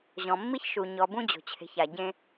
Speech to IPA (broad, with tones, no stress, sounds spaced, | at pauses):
ʑ ɔ̃˨ mː i˦ ç ʃ u˨ ɲ ɔ˨ b ũ˦ d͡ʑ o̤˨ t͡ɕʰ e̤˨ ç a˨ ɟ ẽ˦